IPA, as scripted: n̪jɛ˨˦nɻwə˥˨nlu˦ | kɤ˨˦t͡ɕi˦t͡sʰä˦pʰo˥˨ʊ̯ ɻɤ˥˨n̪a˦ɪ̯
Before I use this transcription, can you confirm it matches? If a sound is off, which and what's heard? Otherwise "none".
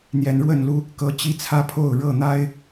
none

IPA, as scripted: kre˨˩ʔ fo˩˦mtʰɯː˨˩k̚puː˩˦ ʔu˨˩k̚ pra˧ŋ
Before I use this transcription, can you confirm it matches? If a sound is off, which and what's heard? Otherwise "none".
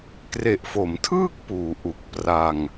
ɯː˨˩ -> ɯː˥˩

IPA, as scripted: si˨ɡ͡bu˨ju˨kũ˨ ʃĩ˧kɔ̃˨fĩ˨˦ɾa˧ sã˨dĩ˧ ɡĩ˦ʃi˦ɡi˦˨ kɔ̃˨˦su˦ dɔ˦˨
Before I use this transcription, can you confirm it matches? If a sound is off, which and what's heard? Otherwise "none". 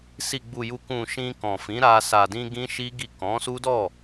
ã˨ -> a˨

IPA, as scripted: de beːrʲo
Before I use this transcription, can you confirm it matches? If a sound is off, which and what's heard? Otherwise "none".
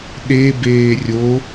d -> ɗ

